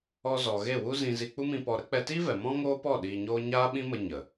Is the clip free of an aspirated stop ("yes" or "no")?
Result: yes